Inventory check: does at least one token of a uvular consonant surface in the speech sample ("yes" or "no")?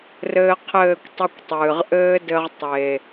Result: yes